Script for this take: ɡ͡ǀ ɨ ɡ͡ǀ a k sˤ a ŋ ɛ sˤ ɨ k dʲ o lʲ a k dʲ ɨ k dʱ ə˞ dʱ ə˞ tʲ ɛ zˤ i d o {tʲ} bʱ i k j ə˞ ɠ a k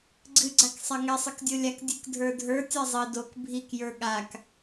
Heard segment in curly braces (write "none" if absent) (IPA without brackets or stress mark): k